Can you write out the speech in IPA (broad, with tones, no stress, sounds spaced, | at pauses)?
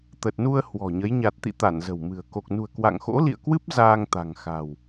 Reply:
t̪ ə˨˩ t̚ n u˧ ə̯ h w ɔ̤˨˩ ɲ ə˨˦ j ɲ a˨˩ t̚ t̪ ḭ˧˨ t̪ a˧˩ n z ə̤˨˩ w m ɨ̤˨˩ ə̯ k o˨˩ k̚ n ṳ˨˩ ə̯ k w a̰˧˨ ŋ x o̰˧˥ l ḭ˧˨ ə̯ k w ɨ˦˥ p̚ z aː˧ ŋ t̪ a̤˨˩ ŋ x a̤˨˩ w